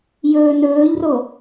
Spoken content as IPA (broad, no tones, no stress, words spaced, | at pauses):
jɵːnɵːʎro